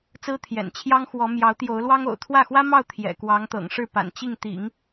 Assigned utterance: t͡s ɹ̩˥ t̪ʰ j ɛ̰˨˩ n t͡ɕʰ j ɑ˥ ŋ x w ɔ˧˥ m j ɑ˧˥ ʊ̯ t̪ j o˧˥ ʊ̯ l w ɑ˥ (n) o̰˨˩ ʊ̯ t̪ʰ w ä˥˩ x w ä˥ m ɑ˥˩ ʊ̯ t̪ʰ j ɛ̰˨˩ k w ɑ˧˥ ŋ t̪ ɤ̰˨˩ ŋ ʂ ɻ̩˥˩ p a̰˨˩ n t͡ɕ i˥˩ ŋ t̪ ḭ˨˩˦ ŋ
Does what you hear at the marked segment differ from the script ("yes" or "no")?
yes